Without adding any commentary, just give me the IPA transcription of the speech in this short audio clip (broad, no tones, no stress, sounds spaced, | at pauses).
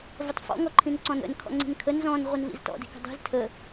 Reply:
v ə tˤ f ɔ̰ ŋ ɔ ǃʰ ĩ n ǀ ɔ̃ n ə̰ n kʰ ɔ̰ ŋ͡ǀ i̤ n kʰ ə n z ɔ̃ n ʁʷ ɪ n v ḭ z t ɔ̰ d i̤ k ə̤ dˤ i̤ z tʰ ə